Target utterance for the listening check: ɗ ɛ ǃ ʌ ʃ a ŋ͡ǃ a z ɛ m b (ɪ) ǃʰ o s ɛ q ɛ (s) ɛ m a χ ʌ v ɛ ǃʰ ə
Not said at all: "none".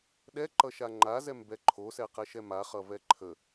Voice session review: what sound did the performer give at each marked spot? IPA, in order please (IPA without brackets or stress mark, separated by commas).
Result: ɛ, ʃ